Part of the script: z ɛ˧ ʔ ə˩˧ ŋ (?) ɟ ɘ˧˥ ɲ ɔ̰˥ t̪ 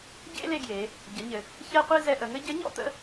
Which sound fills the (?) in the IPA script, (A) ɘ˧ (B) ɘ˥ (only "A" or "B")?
B